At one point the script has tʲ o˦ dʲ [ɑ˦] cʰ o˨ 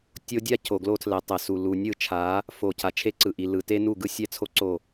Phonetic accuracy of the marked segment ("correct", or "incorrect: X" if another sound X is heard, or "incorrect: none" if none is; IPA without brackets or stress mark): incorrect: a˦